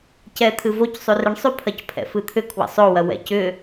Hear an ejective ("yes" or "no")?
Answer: no